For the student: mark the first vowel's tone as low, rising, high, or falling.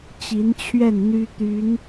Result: rising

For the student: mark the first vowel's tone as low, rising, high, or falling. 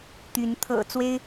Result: rising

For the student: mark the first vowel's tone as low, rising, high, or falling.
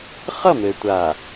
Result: falling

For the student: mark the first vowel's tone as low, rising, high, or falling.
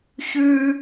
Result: high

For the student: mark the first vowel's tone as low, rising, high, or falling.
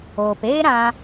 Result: low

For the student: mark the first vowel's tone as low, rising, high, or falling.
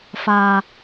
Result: low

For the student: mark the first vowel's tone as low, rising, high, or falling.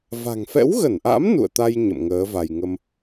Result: low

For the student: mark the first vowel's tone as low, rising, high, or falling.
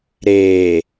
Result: low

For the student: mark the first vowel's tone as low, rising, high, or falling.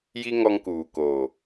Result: high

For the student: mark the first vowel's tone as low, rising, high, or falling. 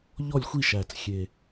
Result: falling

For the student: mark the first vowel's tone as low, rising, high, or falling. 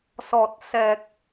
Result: low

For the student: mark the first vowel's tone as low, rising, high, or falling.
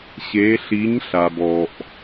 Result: rising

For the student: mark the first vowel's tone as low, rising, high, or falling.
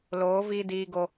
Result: rising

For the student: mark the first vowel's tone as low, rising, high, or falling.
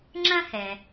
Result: high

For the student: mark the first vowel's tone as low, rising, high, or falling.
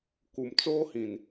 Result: low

